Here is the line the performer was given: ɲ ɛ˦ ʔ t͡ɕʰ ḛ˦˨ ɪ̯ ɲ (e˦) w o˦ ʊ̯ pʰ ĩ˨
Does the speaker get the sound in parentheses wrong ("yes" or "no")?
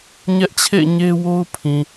no